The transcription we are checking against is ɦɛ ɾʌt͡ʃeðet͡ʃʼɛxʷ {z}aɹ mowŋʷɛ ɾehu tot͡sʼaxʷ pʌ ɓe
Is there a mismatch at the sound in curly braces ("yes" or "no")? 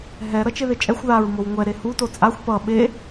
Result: yes